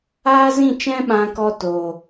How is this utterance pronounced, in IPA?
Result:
aː˦zĩ˦˨ t͡ʃɛ̃˦ɓã˧kɔ˧ toː˨

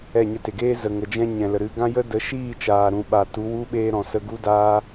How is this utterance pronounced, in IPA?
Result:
ɛ˦˨ɲə˧te˨ ɡeː˦zə˨ ŋə˨d͡ʒɛ̃˧ ɲɛ̃˨lə˨ɾɨ˨˦ ɡã˦jə˦ də˨˦ʃiː˦˨t͡ʃaː˨ɾũ˨ ɓa˨tu˨˦wu˦ ɓeː˧ɾɔ̃˨ sə˧ɡu˦daː˦

